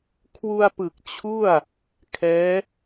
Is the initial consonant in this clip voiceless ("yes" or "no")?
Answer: yes